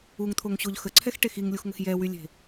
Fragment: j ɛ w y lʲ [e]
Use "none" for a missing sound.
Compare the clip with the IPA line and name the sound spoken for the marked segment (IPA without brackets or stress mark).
e̤